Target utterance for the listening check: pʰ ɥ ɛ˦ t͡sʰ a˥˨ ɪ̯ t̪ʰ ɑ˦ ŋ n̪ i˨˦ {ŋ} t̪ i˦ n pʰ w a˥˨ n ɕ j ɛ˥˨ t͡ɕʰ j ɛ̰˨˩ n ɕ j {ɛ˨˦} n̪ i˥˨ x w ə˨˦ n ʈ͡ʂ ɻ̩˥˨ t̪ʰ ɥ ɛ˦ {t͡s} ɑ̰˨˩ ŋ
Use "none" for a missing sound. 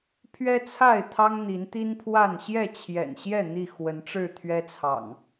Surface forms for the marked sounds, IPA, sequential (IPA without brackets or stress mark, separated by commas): n, ɛ˥˨, t͡sʰ